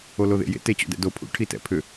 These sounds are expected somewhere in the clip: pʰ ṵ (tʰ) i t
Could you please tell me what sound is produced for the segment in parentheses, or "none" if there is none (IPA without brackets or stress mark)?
ʈʰ